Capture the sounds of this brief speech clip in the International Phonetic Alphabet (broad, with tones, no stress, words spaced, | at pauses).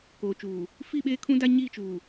koː˨t͡ʃuː˨ | fi˦˨ɓeː˦kʰũ˦ da˦ɲi˦˨t͡ʃuː˨